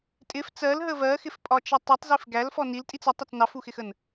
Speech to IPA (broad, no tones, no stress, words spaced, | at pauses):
tʼɪf t͡sɜlɦə vɜxɪfpʼɒt͡ʃɛ tˤutˤzif ɡælfɔ niltʼit͡s ʌtˤʌt͡s nɑfuxɪxən